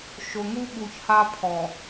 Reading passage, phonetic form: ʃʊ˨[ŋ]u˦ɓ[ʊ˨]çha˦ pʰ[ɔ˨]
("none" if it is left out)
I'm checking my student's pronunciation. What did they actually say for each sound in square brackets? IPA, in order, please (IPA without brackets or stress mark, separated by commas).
ŋ, u˨, ɔ˨